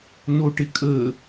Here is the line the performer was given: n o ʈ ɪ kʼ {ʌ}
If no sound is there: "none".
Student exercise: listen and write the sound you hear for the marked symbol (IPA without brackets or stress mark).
ə